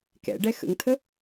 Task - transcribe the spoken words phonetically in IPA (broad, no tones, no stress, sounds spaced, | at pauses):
k ɛ̰ ɖ ɛ x ə̰ ŋ tʰ ə